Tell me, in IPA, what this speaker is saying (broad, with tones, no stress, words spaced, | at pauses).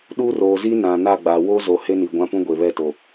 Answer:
ɗu˦roː˨ zi˦nã˨ na˦˨ɡ͡ba˨ wo˦zo˨ he˦ni˨ɡʷã˦pũ˦ ɡʷe˨βɛ˦˨to˨